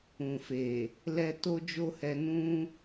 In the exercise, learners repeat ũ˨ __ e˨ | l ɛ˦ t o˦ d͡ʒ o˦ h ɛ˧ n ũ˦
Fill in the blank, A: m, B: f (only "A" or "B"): B